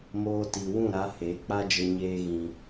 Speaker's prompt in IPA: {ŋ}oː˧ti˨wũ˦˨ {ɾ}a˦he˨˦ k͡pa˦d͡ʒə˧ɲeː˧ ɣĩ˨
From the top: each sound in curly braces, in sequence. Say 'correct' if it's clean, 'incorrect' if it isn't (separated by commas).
incorrect, correct